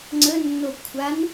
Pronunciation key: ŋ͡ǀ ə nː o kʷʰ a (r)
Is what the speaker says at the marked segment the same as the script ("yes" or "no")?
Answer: no